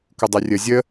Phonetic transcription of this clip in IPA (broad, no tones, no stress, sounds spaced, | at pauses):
k u dˤ e rʲ ə zʲ ə